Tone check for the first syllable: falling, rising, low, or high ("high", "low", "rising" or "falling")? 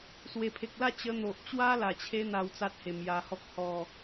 low